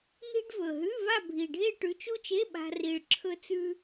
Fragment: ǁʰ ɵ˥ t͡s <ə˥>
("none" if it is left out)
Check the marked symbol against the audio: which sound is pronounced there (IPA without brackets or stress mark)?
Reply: ʉ˥